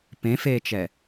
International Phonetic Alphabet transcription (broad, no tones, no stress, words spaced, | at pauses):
pẽfeːt͡ʃɛ